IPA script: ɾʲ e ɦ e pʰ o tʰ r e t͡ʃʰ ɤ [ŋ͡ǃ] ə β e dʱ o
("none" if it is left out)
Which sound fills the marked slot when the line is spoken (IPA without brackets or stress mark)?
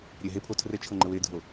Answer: ŋ͡ǃ